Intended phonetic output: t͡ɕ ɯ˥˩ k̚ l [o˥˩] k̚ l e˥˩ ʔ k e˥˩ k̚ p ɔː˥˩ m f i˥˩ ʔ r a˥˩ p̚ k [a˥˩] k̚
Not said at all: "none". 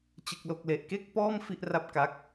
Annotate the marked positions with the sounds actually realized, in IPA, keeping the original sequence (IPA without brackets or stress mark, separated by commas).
o˥˩, a˦˥